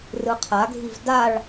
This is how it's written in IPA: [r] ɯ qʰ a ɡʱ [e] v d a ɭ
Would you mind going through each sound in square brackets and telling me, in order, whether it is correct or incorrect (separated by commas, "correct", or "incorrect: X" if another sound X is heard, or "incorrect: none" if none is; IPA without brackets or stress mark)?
correct, incorrect: i